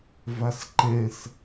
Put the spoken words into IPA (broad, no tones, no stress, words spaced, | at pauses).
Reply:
vasǃɛ̃s